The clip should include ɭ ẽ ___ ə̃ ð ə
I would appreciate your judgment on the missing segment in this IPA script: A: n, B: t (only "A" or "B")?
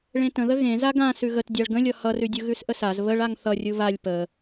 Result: B